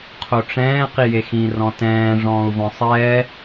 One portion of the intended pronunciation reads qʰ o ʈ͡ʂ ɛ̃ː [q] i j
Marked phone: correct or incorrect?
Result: correct